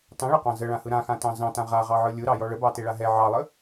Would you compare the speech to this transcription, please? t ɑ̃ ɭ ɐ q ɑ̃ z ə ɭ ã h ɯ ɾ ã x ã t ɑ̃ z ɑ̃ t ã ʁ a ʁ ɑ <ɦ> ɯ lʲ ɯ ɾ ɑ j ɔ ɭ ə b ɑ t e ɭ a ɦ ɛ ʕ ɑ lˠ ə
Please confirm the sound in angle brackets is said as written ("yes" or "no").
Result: no